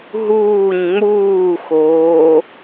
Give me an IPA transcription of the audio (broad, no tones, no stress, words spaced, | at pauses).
ɦuːɲ ŋ͡muːxoː